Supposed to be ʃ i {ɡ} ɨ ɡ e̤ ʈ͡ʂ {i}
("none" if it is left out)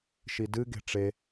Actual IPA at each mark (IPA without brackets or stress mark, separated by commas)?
d, e